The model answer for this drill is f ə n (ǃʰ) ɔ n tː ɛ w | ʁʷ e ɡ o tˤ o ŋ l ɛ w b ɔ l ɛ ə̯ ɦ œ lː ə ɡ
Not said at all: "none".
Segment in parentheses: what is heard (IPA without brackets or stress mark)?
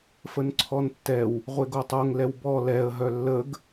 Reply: ǀʰ